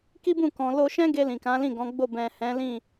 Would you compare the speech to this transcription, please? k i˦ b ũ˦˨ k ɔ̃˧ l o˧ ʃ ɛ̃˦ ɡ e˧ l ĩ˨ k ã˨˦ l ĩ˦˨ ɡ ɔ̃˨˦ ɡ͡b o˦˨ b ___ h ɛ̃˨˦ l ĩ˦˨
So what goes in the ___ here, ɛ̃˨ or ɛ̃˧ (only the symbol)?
ɛ̃˨